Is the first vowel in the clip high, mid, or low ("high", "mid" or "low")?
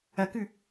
low